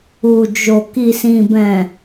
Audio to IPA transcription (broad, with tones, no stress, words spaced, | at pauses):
u˨d͡ʒo˨ ki˨sĩ˨bɛ̃˨